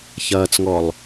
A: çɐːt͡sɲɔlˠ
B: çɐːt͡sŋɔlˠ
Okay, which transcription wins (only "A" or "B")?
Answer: B